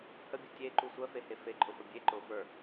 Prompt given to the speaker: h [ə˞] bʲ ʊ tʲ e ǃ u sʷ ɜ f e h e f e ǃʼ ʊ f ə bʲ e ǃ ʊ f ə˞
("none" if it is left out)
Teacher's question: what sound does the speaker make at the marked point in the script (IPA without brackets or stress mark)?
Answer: ə